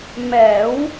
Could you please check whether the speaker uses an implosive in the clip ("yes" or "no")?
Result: no